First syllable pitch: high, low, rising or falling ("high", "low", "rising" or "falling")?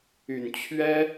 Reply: low